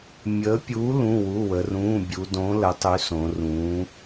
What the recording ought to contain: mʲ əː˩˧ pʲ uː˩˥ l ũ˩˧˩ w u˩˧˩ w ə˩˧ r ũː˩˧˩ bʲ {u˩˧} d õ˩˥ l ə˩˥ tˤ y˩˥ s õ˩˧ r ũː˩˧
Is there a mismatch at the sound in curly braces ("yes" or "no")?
no